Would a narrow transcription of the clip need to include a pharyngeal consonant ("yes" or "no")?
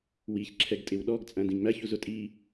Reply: no